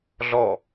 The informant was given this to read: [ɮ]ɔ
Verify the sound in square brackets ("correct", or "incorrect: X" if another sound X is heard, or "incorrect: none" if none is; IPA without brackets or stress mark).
correct